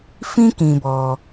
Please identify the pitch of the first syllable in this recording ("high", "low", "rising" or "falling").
high